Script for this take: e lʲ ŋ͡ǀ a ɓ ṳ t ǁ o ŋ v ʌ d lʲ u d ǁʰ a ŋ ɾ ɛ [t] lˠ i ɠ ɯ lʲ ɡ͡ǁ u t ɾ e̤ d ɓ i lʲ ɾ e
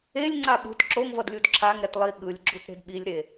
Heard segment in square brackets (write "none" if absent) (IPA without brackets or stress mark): t